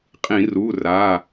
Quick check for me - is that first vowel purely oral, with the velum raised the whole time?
no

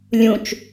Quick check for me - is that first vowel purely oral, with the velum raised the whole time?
no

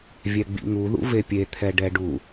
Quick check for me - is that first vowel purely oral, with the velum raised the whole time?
yes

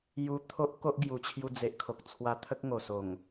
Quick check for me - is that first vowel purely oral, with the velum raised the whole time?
yes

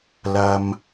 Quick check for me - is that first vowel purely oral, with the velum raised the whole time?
yes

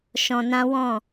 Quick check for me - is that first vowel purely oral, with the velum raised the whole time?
no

